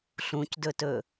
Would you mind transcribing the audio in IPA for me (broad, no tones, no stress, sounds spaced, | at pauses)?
ɬ ũ c d ɵ t ɵ